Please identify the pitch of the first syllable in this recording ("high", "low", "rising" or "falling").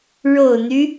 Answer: low